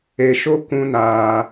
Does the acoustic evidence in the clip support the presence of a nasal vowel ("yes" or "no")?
yes